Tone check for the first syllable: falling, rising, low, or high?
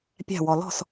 falling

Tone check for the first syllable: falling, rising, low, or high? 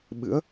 rising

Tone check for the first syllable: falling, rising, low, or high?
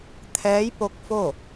rising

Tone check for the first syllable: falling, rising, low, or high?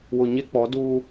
low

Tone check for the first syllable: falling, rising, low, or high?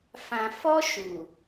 low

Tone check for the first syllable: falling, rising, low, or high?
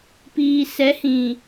low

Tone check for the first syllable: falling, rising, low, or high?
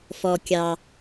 low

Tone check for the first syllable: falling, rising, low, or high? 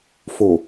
low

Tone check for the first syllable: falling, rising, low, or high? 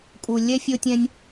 low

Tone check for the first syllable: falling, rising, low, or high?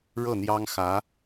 falling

